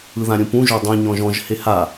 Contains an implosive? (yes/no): no